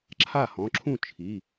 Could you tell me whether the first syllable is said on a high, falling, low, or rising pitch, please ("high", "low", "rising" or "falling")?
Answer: falling